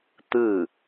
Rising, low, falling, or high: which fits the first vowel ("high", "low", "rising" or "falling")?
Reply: falling